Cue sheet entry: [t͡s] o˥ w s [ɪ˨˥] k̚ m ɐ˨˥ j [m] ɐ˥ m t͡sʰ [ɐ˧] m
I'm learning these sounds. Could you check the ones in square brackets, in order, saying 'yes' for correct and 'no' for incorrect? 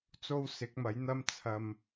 yes, yes, no, yes

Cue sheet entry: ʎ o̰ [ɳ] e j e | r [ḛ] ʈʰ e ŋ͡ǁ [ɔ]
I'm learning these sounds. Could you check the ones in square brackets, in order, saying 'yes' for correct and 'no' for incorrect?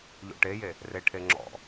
no, no, no

